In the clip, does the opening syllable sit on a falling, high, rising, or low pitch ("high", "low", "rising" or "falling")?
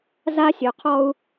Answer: high